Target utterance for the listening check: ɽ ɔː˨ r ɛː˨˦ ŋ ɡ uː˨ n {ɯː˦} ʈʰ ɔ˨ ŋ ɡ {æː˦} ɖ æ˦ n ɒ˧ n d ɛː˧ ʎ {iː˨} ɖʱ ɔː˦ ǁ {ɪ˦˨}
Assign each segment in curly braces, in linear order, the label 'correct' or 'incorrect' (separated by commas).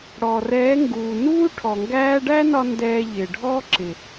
incorrect, correct, incorrect, incorrect